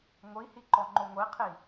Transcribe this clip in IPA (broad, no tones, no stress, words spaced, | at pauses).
ŋʷihiǃɔŋ͡ǃo ŋʷiqʰi